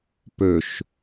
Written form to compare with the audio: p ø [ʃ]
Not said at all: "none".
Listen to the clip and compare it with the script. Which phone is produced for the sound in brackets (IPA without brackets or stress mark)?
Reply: ʃ